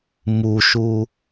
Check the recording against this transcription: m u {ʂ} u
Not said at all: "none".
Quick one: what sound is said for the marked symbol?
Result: ʃ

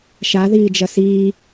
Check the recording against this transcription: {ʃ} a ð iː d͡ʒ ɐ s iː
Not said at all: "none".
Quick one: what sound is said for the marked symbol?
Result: ʃ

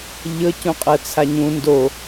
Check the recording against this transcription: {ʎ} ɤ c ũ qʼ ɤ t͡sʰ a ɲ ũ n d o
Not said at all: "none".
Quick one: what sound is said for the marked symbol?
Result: ʎ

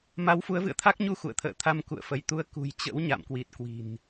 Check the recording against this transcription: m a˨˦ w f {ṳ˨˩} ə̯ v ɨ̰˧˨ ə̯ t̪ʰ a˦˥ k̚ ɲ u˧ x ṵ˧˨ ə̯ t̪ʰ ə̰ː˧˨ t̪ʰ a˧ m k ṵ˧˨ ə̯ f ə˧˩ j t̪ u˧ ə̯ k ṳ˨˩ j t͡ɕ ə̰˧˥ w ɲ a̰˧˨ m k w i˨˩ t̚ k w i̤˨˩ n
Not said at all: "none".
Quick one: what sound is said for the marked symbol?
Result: u˨˦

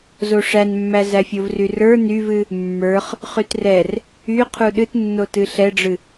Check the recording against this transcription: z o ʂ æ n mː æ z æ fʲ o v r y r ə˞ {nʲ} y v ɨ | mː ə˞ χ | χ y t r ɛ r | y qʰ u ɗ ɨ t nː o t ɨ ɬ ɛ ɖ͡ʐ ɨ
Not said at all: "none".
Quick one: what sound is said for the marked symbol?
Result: n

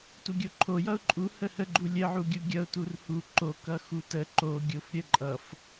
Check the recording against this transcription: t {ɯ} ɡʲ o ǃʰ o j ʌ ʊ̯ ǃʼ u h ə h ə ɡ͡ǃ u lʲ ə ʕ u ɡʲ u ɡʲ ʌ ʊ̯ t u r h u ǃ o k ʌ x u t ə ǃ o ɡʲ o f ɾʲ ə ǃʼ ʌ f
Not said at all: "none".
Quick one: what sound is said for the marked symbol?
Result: u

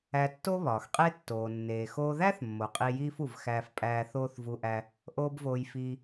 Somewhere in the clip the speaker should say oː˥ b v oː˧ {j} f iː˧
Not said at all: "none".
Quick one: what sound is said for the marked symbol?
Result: j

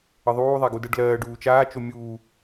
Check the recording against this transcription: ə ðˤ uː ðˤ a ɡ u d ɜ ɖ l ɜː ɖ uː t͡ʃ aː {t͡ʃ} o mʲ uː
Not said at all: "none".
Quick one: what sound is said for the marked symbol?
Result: t͡ʃ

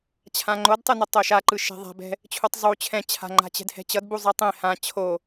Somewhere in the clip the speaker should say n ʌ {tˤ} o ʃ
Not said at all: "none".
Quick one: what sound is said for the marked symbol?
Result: tˤ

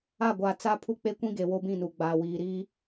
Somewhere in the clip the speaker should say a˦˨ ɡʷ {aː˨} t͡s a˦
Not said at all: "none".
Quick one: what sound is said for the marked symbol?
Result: aː˨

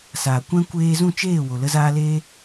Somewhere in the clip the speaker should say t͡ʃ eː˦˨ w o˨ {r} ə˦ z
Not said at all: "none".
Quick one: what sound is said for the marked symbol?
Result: l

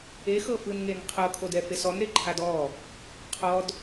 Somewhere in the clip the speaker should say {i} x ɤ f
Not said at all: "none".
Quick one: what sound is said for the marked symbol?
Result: e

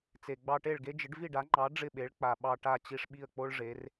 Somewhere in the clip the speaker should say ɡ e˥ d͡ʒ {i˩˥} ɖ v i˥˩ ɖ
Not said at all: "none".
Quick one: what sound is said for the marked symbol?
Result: ɪ˩˥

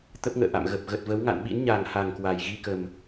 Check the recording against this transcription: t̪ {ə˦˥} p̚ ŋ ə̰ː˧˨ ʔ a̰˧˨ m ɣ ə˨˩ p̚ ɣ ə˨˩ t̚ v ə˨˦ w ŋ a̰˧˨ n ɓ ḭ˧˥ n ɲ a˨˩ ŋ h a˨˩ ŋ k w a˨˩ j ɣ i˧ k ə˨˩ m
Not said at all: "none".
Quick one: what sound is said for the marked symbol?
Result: ə˦˥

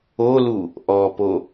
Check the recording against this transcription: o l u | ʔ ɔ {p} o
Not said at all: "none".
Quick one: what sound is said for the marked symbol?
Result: p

